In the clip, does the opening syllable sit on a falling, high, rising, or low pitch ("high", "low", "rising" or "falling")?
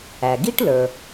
low